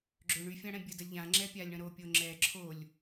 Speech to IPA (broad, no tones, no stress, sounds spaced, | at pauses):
ɡ͡ǁ ø ɳ y fʲ ã ɽ ɛ̃ bʲ ə d ə lʲ ʎ ã ŋ͡ǁ ɛ pʲ a lʲ ɳ ə̃ ɾ o pʲ o ŋ͡ǁ ɛ ǁʰ o lʲ